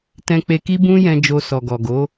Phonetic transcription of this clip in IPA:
tɛ̃˦k͡pe˦ ki˦bũ˦jɛ̃˧ d͡ʒo˧sɔ˨ɡɔ˨ ɡo˨˦

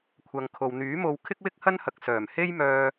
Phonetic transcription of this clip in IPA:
kʷʰɐ˨ŋkʰo˨w n̪yː˨˥mo˧w kʰɪ˥k̚wɪ˥k̚hɐ˥nhɐ˨k̚ sœː˨˩mhe˥j mœː˥

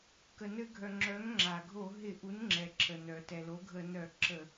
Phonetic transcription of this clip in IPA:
kə˩nɘ˧˩˧ɡʱœ˩ ŋ͡ǁœ˩˥ŋ ŋ͡ǁa˩ɡʱo˧˩˧ɦɪ˧˩˧ʔu˩˥n ŋ͡ǁɛ˩ǁə˩nœ˩ tɛ˩ lo˩˥ɡʱə˧˩˧nœ˧˩˧ ǁə˧˩˧

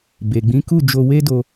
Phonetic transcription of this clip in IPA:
be˨ɡ͡bĩ˨˦ku˦˨d͡ʒo˧ we˦do˧

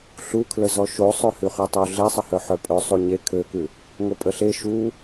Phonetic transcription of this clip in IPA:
ɬukʰlə zɔʃo sˤøhʉχøtˤo ɮesˤəhœ ħœpʼœ sˤuɲe kʰøkʉ | ŋopʼəɬe ʃu

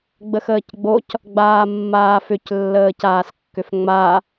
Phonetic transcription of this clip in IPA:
ɡ͡bəxəːcɡ͡boc | ɡ͡baːmːaːfʏc lːəːcaːskːʏfŋ͡ma

